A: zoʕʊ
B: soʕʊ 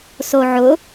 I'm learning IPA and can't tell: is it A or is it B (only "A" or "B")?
B